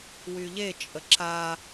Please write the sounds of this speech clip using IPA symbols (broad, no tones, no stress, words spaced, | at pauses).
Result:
wyʎet͡ʃʼə ǁa